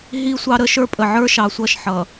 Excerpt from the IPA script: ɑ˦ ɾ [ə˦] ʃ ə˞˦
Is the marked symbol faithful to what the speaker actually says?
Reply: yes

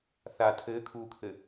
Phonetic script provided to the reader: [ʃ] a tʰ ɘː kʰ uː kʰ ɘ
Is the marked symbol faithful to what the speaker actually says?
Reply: no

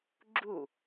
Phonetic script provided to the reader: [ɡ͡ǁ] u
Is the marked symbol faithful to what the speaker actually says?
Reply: yes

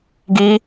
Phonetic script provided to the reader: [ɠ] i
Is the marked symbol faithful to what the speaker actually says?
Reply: no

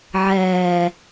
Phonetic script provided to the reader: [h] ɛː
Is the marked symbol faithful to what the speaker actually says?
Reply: no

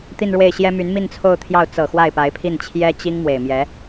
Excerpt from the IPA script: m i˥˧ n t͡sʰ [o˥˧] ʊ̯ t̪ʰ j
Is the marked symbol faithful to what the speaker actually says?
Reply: yes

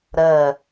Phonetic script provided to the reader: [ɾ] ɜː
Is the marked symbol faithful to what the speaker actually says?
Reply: yes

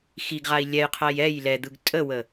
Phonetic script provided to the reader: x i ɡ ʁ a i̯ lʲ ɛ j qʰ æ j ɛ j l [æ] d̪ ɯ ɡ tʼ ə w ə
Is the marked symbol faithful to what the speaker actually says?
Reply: no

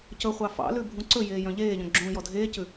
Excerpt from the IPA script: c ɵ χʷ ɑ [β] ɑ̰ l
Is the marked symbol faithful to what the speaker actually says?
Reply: no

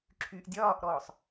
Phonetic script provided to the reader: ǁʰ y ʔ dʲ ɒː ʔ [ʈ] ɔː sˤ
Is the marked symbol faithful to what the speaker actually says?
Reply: no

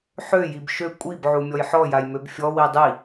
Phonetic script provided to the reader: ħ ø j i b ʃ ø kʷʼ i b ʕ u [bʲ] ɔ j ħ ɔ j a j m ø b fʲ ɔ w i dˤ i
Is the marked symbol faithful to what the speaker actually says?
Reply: no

